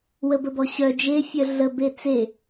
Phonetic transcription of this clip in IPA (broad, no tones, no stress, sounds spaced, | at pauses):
w ə b ə b ɔ ɕ œ d͡ʒ e fʲ œ ɮ ə b e t͡s e